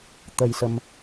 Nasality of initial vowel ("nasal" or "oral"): oral